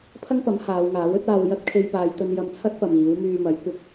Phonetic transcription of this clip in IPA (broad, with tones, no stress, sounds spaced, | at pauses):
pʰ ɐ˥ ŋ p ɐ˨˥ m h aː˨˧ w ŋ aː˨˥ w ɵ˥ t̚ aː˧ w j ɐ˥ t̚ kʰ e˧ j p aː˨˧ j t̪ ɵ˧ n j ɐ˧ m t͡sʰ ɐ˥ t̚ p ɐ˨ m iː˨˥ w m yː˧ m ɐ˨˥ j kʷ ɪ˧ k̚